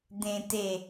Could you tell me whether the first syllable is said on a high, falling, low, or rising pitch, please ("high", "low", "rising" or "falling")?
low